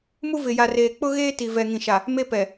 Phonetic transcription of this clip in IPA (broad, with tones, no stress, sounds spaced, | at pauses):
m u˦ v ɪ˨ j a˨ r eː˨ k͡p ʊ˦ ɣ eː˦ t i˨ v ɛ˨ ŋ ĩ˨ ʃ a˨ | m e˦ p ɛ˨